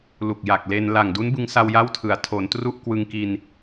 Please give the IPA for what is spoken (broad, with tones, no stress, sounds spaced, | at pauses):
l u˨˩ k̚ j a˨˩ k̚ l e˧ n l a˨˩ ŋ d u˦˥ n b ɯ˧ ŋ s a˧ w j a˥˩ w tʰ ɯ˩˦ a̯ tʰ o˩˦ n t r u˥˩ ʔ k w ɯ˧ ŋ k i˧ n